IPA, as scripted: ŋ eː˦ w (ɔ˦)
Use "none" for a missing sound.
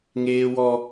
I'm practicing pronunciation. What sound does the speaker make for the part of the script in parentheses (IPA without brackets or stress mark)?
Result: ɔ˦